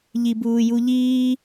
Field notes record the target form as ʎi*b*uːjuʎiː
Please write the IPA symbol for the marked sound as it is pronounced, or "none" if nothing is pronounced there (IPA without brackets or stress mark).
b